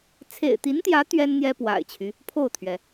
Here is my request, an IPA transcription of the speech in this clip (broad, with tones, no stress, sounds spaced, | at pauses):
t͡sʰ ḛ˨˩ ɪ̯ t̪ i˧˥ n t̪ j ä˧˥ t̪ ɥ ɛ˥ n n̪ j ɛ˥ p w a̰˨˩ ɪ̯ t͡ɕʰ y˦ | pʰ o˥˩ ʊ̯ t̪ʰ ɥ ɛ˩